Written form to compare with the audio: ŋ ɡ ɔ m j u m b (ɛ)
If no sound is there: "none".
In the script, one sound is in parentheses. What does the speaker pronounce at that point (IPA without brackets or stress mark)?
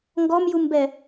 ɛ